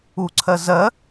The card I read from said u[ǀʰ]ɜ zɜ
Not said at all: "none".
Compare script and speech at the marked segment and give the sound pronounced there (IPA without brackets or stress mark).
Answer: ǀʰ